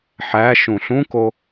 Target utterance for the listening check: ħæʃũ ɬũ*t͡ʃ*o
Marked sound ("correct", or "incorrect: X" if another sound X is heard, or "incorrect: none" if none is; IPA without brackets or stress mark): incorrect: k